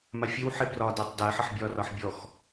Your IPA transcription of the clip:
m a fʲ ə w ħ e b r ɒ d ɛ tˤ d ɜ ħ ə ħ bʲ ɒ r ɒ ħ bʲ ɔ x

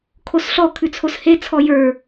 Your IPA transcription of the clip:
kʰ o s ɬ ɔ kʰ ʉ t͡sʰ o s h e t͡sʰ ɔ j ə˞

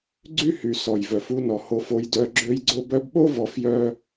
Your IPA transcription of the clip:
ɡ͡ǀ y˦ h y˨ s ɔ˨ j v œ˨ f u˧ n ɔ˨ h o˧ f o˧ j d œ˧ ɡ͡ǁ ø˧ j ɡ͡ǀ o˧ b œ˧ b ɓ o˦ v ɔ˧ f j œ˦

